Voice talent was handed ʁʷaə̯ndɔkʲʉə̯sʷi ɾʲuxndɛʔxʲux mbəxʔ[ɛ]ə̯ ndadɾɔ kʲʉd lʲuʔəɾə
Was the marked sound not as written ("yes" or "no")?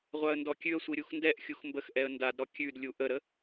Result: no